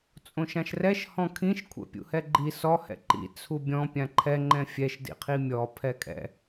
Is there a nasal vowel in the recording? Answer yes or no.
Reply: yes